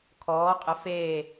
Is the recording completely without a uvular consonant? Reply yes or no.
no